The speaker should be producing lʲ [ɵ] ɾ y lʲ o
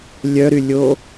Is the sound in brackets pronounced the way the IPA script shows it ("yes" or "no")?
no